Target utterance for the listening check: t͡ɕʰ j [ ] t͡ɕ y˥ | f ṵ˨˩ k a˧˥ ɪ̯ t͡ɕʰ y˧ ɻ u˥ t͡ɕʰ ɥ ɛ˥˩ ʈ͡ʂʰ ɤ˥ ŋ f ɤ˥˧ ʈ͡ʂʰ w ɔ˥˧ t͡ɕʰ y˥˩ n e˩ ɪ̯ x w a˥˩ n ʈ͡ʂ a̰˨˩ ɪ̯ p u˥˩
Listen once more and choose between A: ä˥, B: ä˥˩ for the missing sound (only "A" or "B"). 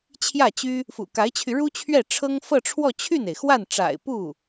B